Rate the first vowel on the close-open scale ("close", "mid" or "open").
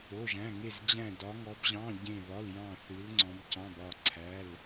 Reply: mid